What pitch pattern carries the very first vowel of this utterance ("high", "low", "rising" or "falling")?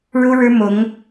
high